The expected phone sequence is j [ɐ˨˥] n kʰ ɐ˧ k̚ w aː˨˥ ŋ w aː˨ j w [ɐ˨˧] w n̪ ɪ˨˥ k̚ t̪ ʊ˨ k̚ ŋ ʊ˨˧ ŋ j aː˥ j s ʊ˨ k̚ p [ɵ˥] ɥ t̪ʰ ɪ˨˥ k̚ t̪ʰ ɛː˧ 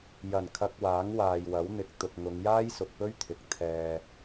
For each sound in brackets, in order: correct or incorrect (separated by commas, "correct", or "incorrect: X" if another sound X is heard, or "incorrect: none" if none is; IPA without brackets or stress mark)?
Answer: incorrect: ɐ˨˩, incorrect: ɐ˨˥, correct